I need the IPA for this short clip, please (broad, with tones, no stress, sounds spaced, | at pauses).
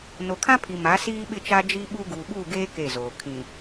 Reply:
n o˨ kʰ ã˦ pʰ i˨ m a˨˦ s iː˦ ɓ ɪ˦˨ t͡ʃ a˦ d͡ʒ i˦ ɓ u˦ ɡ uː˨ ɓ u˦˨ ɡ eː˦ k e˦˨ z oː˨ kʰ ĩ˨